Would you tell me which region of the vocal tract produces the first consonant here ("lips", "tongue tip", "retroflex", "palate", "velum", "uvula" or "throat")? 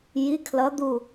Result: palate